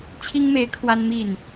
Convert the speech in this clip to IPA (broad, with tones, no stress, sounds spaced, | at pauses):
t͡ɕʰ i˥ ŋ m e˧˥ ɪ̯ kʰ w a˥ n m i˥˩ n